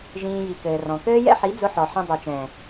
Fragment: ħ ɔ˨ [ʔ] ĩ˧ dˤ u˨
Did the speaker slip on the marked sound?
yes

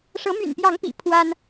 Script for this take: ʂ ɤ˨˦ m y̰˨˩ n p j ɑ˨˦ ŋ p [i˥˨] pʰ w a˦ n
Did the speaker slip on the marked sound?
yes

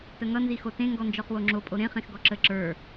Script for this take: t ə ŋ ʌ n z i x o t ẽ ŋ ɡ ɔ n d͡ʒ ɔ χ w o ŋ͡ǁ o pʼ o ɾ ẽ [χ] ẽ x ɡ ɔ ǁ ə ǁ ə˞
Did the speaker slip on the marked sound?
no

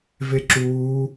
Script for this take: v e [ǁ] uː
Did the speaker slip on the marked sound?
no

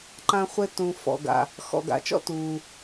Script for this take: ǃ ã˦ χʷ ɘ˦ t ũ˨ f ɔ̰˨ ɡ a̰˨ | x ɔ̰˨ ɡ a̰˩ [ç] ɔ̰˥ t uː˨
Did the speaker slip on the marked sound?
yes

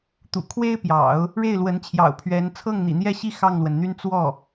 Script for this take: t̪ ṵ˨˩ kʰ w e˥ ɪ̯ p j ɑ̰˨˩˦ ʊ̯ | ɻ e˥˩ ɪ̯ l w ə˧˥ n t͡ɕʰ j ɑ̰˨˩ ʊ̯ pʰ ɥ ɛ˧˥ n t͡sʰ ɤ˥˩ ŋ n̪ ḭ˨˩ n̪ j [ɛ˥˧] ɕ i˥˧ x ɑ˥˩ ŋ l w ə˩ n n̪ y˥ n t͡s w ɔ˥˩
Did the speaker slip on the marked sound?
no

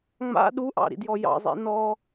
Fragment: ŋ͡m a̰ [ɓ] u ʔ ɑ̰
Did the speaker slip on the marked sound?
yes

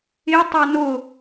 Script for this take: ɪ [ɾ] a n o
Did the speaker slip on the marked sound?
yes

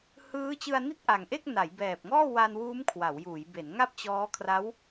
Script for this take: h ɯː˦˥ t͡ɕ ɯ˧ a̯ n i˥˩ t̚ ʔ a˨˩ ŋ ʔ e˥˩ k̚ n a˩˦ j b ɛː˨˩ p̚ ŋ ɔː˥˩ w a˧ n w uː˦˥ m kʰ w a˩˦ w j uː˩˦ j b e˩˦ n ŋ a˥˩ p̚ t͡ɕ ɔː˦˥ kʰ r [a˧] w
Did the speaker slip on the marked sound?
yes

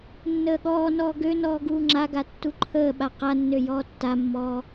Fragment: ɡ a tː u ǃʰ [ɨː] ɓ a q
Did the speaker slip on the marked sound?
yes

